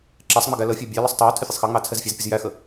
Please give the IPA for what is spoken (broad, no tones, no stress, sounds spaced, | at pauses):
ǁ ɛ sˤ ŋ͡m ɪ ɡ æ l ə fʲ æ bʲ æ l ə sˤ tˤ ɛ w tʰ ɪ fʲ ʊ sˤ x ɑ ŋ͡m ɑ t͡sʰ ɛ z fʲ ɑ z pʲ ə z j æ x ə